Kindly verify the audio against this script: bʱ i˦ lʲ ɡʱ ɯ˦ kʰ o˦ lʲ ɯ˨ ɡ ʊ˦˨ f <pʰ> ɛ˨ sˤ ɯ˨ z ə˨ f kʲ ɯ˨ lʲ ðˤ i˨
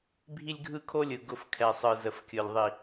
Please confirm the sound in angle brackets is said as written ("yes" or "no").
no